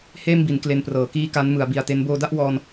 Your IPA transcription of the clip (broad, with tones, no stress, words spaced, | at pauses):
heː˥˩mbi˩˦n kle˧nprɤː˩˦ kiː˦˥ ka˦˥nmɯ˩˦a̯bi˨˩a̯te˦˥n boː˧da˥˩ʔwɔː˧n